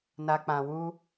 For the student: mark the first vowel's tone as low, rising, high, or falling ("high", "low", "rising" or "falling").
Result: low